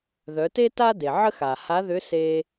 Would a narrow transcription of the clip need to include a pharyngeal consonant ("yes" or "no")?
yes